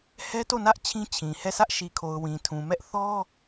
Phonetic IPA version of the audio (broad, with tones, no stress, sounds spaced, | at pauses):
h ɛ˦ t o˦˨ n ä˦ ʔ t͡ɕʰ ĩ˦ t͡ɕʰ ĩ˨ h ɛ˦˨ sʰ ä˦ ʔ ʃ i˨ kʰ o˨ ʊ̯ w ĩ˨ tʰ ũ˨ m ɛ˦ ʔ θ ɔ˦